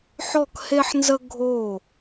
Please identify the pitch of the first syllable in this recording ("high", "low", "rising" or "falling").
falling